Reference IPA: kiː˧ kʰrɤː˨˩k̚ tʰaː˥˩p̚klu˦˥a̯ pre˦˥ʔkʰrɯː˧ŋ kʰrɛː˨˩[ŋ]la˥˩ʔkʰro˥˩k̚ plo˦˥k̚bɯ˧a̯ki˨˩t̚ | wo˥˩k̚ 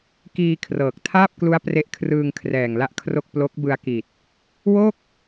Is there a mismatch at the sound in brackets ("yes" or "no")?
no